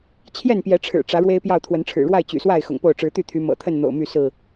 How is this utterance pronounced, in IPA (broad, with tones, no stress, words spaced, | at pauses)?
t͡ɕʰjɛ˥˨npjɛ˨˦ʈ͡ʂʰɻ̩˨˩ ʈ͡ʂä˨˦ ɻwe˦ɪ̯pjɑ˥˨ʊ̯t̪ʰwə˨˦nʈ͡ʂʰɻ̩˨˩ ɻwa˥˨ɪ̯t͡ɕy̰˨˩swa˥˨ɪ̯ xʊ̰˨˩ŋpo˥˨ʊ̯ ʈ͡ʂɻ̩˨˦t̪y˥˨t̪ʰy˨˦ mɤ̰˨˩t̪ʰə˥˨n n̪o̰˨˩ʊ̯my˥˨sɹ̩˥˨